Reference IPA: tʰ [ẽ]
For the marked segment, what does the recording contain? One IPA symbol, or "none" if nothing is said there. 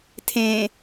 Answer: ẽ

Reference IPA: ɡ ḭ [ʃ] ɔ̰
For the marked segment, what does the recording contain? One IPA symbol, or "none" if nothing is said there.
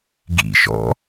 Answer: ʃ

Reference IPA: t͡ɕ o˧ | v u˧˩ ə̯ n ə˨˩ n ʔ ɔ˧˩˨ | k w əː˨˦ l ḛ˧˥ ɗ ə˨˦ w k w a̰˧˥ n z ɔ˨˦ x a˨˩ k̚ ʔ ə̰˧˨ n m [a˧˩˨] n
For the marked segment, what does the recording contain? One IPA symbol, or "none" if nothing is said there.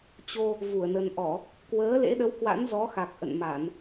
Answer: a˧˩˨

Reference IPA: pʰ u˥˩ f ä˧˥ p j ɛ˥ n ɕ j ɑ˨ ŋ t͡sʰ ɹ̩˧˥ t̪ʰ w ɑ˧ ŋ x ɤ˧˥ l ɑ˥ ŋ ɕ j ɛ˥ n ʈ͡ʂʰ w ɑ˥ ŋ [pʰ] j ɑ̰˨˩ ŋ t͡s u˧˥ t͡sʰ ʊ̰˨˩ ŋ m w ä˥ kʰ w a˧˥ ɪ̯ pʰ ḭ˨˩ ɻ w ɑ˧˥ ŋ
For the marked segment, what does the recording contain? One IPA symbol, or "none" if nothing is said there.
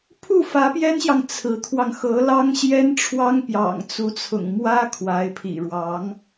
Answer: p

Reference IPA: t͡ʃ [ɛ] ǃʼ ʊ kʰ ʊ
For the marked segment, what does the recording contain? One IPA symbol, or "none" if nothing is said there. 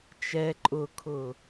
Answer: ɛ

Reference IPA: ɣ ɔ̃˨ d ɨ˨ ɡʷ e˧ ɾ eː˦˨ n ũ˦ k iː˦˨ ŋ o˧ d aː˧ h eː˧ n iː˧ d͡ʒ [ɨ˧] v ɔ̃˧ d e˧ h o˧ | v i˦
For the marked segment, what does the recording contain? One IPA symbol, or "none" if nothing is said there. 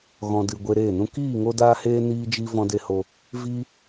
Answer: i˧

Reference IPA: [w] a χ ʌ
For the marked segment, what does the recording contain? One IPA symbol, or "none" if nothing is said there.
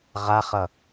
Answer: ʁ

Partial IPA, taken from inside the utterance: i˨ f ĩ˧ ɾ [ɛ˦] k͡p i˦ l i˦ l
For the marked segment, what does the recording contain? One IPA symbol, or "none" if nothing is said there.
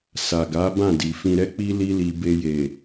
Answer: ɛ˦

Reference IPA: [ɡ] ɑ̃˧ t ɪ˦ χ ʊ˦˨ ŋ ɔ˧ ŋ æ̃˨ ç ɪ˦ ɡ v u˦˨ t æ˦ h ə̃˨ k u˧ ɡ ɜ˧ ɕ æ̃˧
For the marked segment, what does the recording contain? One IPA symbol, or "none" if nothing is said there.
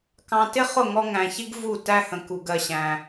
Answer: k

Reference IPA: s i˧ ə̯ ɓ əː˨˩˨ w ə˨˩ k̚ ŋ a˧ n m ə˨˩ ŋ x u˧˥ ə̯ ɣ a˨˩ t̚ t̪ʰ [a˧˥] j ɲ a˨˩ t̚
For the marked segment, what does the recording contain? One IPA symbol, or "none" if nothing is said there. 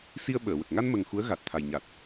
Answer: a˨˩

